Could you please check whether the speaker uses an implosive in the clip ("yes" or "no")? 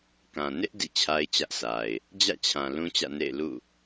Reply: no